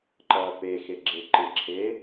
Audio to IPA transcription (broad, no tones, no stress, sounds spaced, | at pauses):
ǃ ʌː p e x e ɡ͡ǁ e ǃ ɪ ǁʰ e